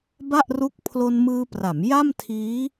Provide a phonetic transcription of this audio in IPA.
ba˥˩ʔru˦˥k̚ pʰlo˧nmɯː˧pra˩˦m ja˥˩mtʰiː˦˥

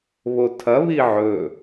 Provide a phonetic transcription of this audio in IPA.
βotʰɐ βiʕɵ

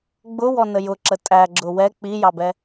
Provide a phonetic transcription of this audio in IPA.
ɡ͡bʊwɔnə jʊǁə tʼæɡ͡ǁʊ wɛ k͡pijɑbɛ

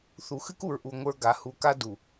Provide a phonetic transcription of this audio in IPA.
θu˨xɨ˦ku˨ɹʔu˨ ŋʷə˞˦ɡa˨˦ hu˨ka˦ du˨

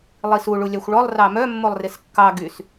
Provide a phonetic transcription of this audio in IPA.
lˠisu ɭulʲɑxʷɭɔlˠ rɑmœ mːolˠreskːɑ ɡys

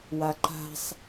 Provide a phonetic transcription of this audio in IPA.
waǃa̤sˤ

